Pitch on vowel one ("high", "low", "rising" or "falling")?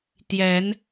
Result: rising